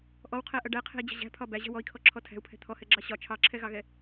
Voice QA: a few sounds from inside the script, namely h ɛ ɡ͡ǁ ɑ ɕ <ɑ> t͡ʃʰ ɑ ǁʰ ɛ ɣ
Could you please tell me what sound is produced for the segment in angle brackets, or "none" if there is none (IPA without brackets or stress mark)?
ɒ